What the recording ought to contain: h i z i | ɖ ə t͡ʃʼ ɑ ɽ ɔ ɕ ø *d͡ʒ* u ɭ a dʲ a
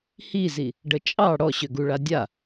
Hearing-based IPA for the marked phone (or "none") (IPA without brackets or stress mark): ɡ